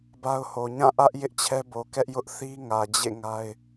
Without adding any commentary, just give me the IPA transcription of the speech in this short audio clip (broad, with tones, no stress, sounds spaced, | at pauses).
b a˦ ʊ̯ h o˨ ɲ ã˦˨ ʔ ä˦ ʔ j ɪ˦ ʔ t͡ɕʰ ɛ˦ b o˨ k ɛ˦ ʔ j ʊ˦ ʔ θ i˦ ŋ ä˨ d͡ʑ ḛ˦˨ ŋ a˦ ɪ̯